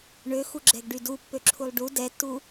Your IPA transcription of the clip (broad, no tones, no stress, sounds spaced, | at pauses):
ɳ ø x u ɡ͡ǁ ɛ ɡ ɖ y d u pː ø ǁʰ u lˠ ɖ u d ɛ tː u